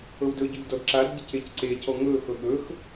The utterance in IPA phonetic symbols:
ɤwdɵɟɵʎ dɔdǁadɟə cecǀecɔ ŋɵxɤ ɠɵx

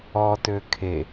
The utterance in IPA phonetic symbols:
ɔtø kʰe

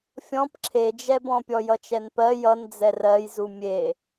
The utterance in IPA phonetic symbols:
fʲɔ̃p ǁʰed͡ʒɛbɔ̃ pʲɔjʌt͡ʃɛnpɜ jʌnd͡zɛ rɜjzu mʲe

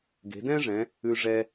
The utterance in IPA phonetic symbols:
ɡe̤˩˧dɛ̃˥ʐɛ̃˩˧ | ʉ˧ʐɛ˧

